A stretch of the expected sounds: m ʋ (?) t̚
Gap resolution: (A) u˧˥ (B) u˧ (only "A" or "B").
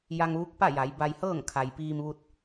B